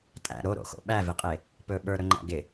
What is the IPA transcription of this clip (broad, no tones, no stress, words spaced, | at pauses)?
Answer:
tʼæ̰ ɾoɾo̰xo̰ ɓævɪqʼe | pɵ ɓə˞ɾɵŋ͡ǃæ̰ ɡɪ